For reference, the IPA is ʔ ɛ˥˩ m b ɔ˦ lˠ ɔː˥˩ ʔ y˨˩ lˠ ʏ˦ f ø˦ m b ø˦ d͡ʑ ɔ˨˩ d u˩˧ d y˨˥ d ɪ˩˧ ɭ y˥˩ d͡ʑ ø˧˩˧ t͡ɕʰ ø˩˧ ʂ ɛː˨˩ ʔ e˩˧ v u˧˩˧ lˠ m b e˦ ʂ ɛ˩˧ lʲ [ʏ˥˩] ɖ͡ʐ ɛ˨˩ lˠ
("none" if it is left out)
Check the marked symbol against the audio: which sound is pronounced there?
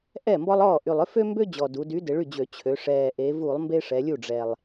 u˥˩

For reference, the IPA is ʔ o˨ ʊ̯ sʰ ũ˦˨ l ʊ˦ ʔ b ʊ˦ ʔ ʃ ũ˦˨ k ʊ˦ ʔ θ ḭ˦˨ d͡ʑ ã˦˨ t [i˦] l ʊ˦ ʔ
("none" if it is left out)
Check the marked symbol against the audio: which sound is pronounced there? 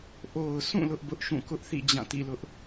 ḭ˦˨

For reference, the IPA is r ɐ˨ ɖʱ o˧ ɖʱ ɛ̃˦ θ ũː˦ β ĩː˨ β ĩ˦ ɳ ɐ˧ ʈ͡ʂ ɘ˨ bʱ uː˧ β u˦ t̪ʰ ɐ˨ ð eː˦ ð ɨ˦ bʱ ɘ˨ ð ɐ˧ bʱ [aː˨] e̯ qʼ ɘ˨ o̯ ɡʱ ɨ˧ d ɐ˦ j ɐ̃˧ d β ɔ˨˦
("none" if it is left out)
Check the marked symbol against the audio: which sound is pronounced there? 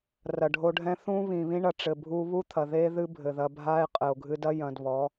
aː˦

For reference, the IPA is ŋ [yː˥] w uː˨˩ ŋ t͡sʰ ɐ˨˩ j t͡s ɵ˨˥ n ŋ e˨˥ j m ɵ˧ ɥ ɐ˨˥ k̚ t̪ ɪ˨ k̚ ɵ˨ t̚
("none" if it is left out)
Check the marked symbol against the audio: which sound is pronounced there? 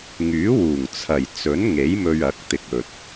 yː˨˥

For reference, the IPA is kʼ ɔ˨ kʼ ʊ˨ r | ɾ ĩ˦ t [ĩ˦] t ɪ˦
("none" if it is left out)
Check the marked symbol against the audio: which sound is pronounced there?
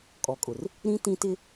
ĩ˦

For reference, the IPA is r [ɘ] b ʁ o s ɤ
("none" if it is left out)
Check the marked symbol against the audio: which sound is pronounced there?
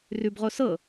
ʉ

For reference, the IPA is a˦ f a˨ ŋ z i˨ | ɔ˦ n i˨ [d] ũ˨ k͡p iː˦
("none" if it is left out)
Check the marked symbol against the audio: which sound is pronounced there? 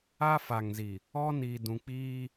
d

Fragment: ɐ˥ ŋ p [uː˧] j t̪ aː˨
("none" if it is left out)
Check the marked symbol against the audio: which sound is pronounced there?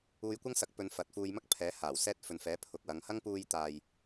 uː˧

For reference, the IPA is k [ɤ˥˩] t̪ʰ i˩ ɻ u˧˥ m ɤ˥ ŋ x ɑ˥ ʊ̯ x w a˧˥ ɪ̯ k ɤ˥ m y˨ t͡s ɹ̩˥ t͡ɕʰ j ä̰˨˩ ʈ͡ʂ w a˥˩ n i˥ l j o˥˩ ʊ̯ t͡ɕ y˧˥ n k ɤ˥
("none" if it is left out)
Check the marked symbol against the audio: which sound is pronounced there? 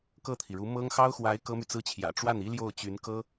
ɤ˥˩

